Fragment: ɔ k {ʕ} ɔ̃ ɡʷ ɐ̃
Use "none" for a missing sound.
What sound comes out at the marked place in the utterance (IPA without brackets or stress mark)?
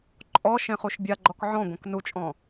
ʕ